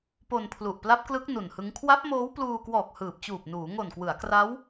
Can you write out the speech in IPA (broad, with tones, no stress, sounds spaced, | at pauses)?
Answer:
p o˧ n pʰ l u˨˩ ʔ p l a˦˥ p̚ k l ɯ˦˥ k̚ n u˨˩ n h ɯ˦˥ ŋ kʰ w a˦˥ p̚ m oː˦˥ w p l uː˧ k w ɔː˨˩ k̚ h ɯː˨˩ p̚ t͡ɕ uː˨˩ p̚ n uː˩˦ ŋ o˨˩ n k w ɯ˩˦ a̯ k r a˦˥ w